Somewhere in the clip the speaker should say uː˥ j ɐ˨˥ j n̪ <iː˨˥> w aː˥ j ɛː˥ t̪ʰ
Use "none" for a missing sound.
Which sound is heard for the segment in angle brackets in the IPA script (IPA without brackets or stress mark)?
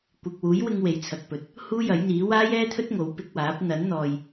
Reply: iː˨˥